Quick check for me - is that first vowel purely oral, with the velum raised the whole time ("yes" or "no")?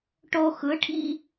yes